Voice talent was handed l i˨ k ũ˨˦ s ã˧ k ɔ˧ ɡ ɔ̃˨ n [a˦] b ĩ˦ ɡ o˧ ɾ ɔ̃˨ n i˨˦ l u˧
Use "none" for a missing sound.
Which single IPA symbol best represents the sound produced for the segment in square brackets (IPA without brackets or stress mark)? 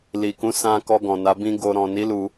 a˨˦